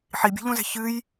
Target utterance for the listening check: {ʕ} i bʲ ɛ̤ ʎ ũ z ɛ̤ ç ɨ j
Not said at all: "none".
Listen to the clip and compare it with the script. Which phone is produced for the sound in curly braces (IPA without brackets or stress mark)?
ħ